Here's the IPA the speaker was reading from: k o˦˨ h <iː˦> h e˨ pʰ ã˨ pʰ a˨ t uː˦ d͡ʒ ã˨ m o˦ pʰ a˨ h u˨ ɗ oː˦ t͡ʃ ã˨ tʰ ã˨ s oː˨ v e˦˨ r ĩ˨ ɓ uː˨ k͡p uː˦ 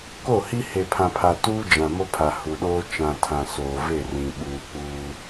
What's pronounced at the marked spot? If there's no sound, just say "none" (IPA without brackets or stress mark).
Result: i˦